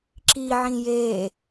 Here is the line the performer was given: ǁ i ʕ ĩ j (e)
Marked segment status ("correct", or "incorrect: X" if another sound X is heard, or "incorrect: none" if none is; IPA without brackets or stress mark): correct